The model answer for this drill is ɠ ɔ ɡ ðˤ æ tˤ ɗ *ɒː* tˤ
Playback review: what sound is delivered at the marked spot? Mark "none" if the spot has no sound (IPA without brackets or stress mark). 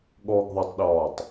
ɒː